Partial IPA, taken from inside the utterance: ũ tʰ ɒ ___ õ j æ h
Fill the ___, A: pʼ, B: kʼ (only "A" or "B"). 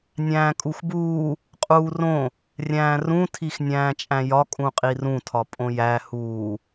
A